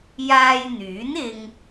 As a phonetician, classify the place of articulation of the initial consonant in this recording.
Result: palatal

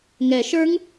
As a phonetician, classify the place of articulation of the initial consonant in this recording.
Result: velar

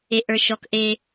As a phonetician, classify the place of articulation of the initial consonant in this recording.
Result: glottal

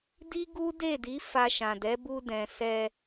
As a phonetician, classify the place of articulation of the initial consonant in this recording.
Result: alveolar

